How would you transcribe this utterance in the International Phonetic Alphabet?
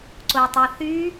ǀ o tˤ o θ y

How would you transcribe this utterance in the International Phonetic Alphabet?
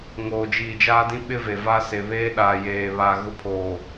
ŋ oː˨ d͡ʒ iː˨ d͡ʒ aː˦ d ĩ˦ ɓ ɪ˦ v e˨ v a˦ s e˨ β eː˦ ɗ aː˨ j eː˨ β a˨ ɣ ʊ˦ pʰ oː˨

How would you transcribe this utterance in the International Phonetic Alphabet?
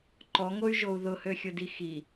ǃ ɔ ŋ o y̯ ʒ o u̯ ð ʊ h ø xʲ ʊ d i x i

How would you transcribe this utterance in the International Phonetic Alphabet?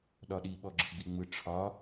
ɗ ɒ ɗ i ɓ ɔ ɡ͡ǁ ɯ ɡ͡b i ŋ͡m ɯ ʈ͡ʂʰ ɒ

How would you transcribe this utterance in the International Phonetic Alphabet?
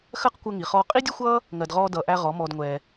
x ɜ˦ q kʷ əː˧ ŋ i˨ χ ɔː˧ qʼ i˦ dʲ ə˦ xʷ ʌː˦ | ŋ ɜ˨ d ʁ ɔː˧ d ʌː˨ ʔ æ˧ ʁ ɔ˨˦ m ɔː˧ d ŋʷ ɛː˧

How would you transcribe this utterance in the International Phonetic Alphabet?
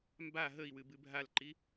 m b a ɦ ə i̯ w ɨ b ɨ bʱ a l ǃ i

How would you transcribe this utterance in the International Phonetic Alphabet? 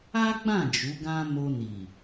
a˦ ɡ͡b ã˦˨ d͡ʒ u˨˦ ɡ ã˦ m o˧ n i˨

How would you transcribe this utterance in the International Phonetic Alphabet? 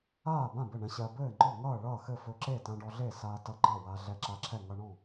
aː˥˩ b ã˥˩ b ɘ˥˩ ɳ ɛ̃˧ ɕ ɜ˧ b ɘː˥˩ ŋ͡ǃ ɔ˥˩ ŋ ʌː˥˩ ɭ ʌː˥˩ x ɘ˥˩ f ɵ˧ ǁ e˥˩ t ã˧ ɖ ɔ˧ ɮ e˥˩ s aː˧ t ʌ˧ ɡ͡ǃ ʌ˥˩ w a˧ ɮ ɛ˧ ǁ a˧ ǁʰ ɛ˥˩ ŋ ʌ˧ ɳ ɔ̃˥˩

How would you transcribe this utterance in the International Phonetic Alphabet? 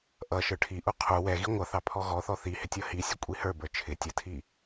ʔ ʌ ʃ ə˞ ʈʰ i ʔ u qʰ u w ɛ ɣ i ŋʷ ʌ θ ɑ pʰ ɔ ɣ ɔ θ ɔ θ i h ɪ tʲ ʌ h i sʲ ə kʷʼ i h ə˞ b ə˞ t͡ʃʰ ɪ tʲ ə tʰ i

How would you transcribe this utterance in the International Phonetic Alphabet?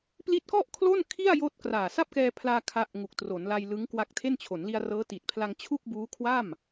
p l i˦˥ t̚ k ɔ˥˩ ʔ kʰ l o˥˩ n kʰ i˥˩ a̯ j oː˦˥ t̚ k r aː˨˩ s a˥˩ p̚ k ɛː˧ pʰ l aː˧ kʰ a˦˥ ʔ ŋ u˨˩ k̚ t r o˩˦ n l a˧ j l ɯ˦˥ ŋ k w a˦˥ k̚ tʰ e˥˩ n t͡ɕʰ o˩˦ n l i˧ a̯ r ɤː˦˥ t i˨˩ t̚ pʰ l a˧ ŋ t͡ɕʰ u˥˩ k̚ b uː˦˥ kʰ w a˥˩ m

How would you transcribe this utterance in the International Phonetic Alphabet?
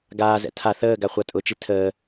ɡ aː z ɛ̰ tʰ a θ əː ɡ a χʷ a tʼ ʊ t͡ʃ i tʰ əː

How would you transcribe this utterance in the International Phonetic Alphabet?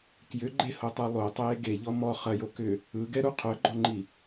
k j ʏ ɡ͡ǃ e h o tˤ u lˠ o tˤ eː ɡ e ʎ ɔ m ɔ χ ɐ j o k ʏ | ɯ ɡ ɛ ɾ u qʰ œ ɡ͡ǃ ɔ ŋ͡ǃ i

